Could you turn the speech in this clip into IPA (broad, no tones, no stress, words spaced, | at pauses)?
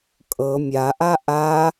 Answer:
kʼɤ mʲaʔa ʔa